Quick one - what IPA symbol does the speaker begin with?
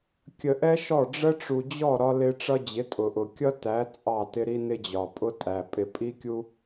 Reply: kʲ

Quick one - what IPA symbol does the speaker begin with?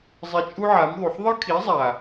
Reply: zˤ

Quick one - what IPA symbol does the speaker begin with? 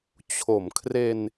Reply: t͡ɕʰ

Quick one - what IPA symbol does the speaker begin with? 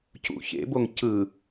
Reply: c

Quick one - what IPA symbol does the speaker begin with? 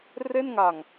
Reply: r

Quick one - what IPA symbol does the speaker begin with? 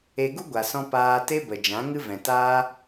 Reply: e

